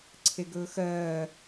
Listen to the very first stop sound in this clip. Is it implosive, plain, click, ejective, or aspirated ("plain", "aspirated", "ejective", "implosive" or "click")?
click